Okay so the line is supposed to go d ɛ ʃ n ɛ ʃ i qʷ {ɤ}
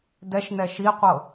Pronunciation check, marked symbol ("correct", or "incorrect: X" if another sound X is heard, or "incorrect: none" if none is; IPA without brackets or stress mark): correct